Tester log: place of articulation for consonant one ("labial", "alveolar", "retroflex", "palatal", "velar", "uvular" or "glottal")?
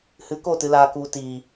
glottal